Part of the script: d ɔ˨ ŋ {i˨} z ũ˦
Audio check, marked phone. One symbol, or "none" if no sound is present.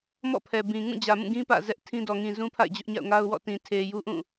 ĩ˨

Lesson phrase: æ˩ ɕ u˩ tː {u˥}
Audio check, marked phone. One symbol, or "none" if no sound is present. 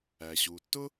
ʊ˥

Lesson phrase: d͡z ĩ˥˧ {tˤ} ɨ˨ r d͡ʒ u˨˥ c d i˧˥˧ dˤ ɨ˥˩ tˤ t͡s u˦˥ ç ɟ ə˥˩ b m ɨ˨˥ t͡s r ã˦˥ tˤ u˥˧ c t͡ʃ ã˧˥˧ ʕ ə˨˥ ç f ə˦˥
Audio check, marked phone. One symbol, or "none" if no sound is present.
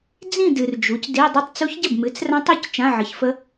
d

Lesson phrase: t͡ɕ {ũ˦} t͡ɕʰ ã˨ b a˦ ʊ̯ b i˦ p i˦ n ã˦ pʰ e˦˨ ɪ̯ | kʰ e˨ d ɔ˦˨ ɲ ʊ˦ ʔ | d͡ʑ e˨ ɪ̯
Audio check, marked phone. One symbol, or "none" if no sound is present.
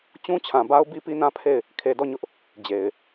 ũ˦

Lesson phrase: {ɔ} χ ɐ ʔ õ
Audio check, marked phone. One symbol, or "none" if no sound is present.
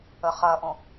ə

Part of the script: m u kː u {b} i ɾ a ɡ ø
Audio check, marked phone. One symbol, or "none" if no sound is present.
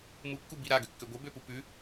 b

